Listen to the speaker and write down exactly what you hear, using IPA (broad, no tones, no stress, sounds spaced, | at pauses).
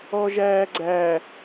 ɔ ʒ æː ɡ͡ǀ æ